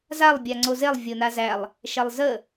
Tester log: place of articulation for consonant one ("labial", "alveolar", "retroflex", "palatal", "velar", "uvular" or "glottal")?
alveolar